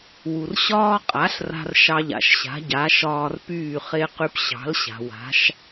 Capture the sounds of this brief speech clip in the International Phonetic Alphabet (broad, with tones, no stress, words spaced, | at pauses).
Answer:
wu˩rɕɒː˥ qʼa˩˥ɬra̤˧r ʃɑ˧ʎa̰˩ʃɕa̤˩˥ɟa˩˥ ʃɒː˧rpyː˥˩χe˥ qy˧pɕɑ̤˩˥lɕa̤˩ wa̤˩˥ʃ